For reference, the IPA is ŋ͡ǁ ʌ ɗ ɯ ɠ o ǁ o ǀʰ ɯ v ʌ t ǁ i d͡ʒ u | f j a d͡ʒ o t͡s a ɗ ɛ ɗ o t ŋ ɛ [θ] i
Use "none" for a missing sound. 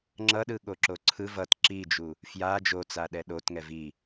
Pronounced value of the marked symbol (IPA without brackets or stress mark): v